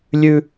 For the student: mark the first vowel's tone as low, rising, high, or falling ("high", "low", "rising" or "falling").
high